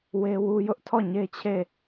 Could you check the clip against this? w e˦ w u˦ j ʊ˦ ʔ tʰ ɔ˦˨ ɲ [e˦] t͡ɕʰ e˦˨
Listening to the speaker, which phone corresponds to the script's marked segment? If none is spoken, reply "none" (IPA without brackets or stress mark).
e˦